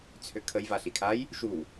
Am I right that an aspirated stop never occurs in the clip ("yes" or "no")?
no